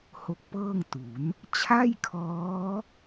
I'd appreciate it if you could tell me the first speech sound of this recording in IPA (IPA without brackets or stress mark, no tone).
h